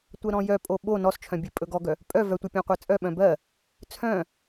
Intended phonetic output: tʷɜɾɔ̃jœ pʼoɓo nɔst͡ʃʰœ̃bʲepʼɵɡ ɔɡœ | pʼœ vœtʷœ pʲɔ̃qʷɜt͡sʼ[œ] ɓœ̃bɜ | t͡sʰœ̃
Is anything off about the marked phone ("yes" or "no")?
no